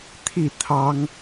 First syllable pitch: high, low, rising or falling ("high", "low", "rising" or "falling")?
falling